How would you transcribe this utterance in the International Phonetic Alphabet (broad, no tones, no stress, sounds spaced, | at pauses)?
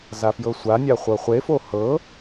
z a f j ɤ sʷ a nʲ a χʷ ɤ χʷ e f o h ɤ